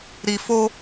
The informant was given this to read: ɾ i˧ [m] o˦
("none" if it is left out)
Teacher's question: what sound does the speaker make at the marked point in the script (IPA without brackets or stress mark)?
f